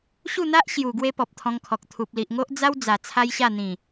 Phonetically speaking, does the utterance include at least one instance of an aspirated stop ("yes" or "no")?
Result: yes